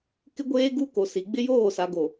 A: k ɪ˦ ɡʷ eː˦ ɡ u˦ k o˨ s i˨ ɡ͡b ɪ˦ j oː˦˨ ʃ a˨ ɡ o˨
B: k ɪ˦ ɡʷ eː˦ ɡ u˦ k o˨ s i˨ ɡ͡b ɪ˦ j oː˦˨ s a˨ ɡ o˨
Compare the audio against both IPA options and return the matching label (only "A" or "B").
B